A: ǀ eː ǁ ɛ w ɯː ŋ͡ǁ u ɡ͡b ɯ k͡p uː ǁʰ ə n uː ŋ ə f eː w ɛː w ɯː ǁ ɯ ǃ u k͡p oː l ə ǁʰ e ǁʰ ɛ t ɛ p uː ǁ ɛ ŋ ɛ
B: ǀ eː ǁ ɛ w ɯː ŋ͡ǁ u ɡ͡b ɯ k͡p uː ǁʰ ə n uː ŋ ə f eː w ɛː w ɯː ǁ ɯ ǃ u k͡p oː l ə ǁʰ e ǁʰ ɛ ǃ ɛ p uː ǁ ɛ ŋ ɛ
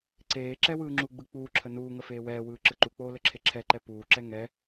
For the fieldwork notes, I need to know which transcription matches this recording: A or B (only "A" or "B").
B